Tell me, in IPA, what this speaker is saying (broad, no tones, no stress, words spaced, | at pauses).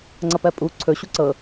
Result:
ŋ͡ǀʌpɜpʼu ǀʰɵ ɕuǀɤ